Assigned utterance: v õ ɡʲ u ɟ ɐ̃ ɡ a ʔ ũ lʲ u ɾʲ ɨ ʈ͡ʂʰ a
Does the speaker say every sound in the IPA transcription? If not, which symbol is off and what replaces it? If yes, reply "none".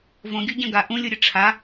none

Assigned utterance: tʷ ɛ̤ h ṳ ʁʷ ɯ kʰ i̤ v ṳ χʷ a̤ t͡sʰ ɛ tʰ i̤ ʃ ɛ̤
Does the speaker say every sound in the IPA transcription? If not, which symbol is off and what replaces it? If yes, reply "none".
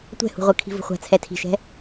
none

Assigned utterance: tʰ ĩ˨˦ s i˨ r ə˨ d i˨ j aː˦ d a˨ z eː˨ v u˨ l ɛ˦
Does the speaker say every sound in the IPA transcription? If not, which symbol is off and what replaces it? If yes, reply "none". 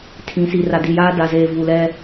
ə˨ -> a˨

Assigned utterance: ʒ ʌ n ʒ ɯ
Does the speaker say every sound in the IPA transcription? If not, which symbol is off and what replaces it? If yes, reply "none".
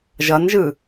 none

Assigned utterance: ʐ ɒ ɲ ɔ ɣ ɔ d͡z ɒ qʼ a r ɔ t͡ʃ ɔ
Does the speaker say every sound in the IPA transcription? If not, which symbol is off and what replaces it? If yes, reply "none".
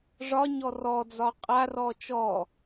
ɣ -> r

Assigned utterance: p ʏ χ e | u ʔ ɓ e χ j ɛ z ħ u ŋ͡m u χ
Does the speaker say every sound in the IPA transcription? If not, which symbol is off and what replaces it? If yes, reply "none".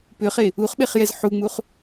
ʔ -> χ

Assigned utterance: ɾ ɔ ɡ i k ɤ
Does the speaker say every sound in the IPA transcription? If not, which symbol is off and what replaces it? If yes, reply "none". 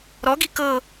none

